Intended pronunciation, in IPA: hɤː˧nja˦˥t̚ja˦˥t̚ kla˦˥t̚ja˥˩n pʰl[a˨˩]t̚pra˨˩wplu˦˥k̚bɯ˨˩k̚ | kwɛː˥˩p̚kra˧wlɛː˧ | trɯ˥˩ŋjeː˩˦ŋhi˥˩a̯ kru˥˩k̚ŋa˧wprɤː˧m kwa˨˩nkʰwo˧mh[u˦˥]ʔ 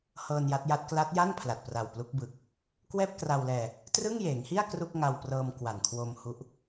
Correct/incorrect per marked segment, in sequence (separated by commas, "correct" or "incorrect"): correct, correct